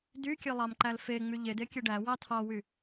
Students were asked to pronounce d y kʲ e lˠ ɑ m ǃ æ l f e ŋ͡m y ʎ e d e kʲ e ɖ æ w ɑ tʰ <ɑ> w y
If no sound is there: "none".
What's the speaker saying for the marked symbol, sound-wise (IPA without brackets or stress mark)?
ɑ